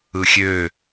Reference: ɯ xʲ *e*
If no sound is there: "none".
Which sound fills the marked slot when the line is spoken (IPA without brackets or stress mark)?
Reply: ø